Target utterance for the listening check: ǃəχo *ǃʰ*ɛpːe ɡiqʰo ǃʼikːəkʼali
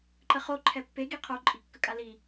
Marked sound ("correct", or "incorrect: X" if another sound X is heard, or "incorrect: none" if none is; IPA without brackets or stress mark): correct